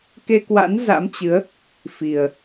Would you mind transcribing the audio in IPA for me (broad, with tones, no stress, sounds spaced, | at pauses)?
k e˧ k w a̰˧˥ n z a̰˧˥ m t͡ɕ ɨ˨˦ ə̯ | f i˨˩ ə̯